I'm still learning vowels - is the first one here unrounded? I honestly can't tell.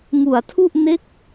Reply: no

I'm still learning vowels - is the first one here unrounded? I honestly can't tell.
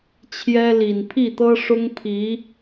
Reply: yes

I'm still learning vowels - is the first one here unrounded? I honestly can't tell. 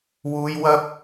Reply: no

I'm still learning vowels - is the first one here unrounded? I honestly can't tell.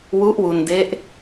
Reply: no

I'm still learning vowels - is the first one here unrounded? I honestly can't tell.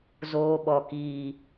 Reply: no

